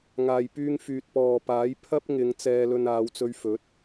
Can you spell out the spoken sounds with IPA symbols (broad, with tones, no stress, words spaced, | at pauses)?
ŋaː˨jpyː˧ŋfyː˨t̚pɔː˨ paː˨˥j pʰɐ˥p̚ŋɪ˨˧ŋ t͡sɛː˧lɵ˧n aː˨˧wt͡sɵ˧ɥfɵ˨˥t̚